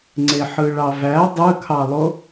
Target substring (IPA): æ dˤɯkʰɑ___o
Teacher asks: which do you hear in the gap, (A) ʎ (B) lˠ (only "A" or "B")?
B